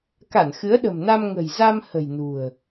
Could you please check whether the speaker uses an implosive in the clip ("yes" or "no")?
yes